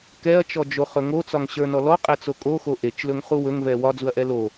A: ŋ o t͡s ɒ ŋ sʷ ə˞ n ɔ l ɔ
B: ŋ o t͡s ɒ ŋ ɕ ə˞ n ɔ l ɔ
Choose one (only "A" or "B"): B